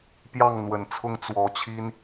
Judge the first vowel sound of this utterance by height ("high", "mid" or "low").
low